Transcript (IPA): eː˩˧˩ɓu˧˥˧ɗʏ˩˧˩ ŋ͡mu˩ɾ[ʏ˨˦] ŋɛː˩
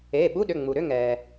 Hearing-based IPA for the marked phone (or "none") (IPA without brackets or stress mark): ʏ˧˥˧